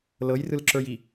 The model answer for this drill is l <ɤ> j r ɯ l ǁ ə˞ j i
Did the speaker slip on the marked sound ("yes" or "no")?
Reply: no